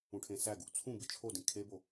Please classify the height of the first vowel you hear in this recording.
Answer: high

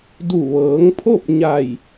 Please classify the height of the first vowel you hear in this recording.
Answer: high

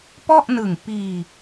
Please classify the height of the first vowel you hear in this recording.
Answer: mid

